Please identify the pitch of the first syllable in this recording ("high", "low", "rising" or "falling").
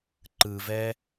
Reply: low